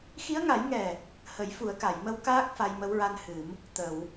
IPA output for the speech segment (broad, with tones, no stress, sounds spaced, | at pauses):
x i˧˥ ə̯ ŋ a˨˩˦ j ŋ ɛ˨˩ | h ə˨˩˦ j f u˨˩˦ ə̯ k a˨˩˨ j m ə˧ w k aː˦˥ k̚ f a˧ j m ə˧˥ w ɹ a˧ n h ɨ˨˩˦ m | t̪ ə˨˩˨ w